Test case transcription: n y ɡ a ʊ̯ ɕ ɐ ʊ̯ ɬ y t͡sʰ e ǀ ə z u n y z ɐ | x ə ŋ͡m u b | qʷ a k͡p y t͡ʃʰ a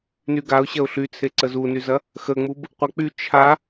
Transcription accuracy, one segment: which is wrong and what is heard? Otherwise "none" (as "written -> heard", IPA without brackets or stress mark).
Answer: none